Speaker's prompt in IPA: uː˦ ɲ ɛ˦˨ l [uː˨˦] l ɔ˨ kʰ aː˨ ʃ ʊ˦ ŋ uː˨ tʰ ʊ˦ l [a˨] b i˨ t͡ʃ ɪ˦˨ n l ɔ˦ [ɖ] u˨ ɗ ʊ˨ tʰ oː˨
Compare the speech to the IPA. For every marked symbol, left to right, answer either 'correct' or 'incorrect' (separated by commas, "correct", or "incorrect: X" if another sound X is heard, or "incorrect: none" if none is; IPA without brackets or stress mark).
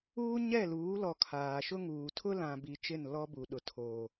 correct, incorrect: ã˨, incorrect: b